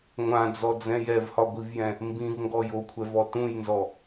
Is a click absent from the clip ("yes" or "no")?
yes